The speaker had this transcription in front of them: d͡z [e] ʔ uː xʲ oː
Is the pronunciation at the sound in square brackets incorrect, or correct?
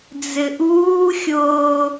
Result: incorrect